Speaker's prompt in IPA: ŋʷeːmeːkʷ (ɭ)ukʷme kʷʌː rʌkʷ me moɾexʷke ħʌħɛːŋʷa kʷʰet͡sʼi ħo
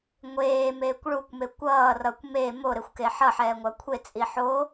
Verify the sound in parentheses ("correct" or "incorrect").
correct